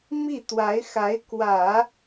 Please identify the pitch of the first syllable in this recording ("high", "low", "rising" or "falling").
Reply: falling